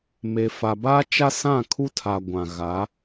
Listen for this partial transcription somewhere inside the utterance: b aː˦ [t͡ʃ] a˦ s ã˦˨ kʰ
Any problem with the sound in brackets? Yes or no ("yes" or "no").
no